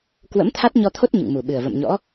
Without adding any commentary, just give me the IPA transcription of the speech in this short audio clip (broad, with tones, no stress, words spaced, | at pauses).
kwə̰˧˥mt̪ʰa˦˥t̚ɲɔ˧t̪ʰo˦˥t̚ ɲɨ̰˧˨ŋmu˨˩ɓɨ˨˩ə̯ və̰˧˨mɲɔ̰˧˥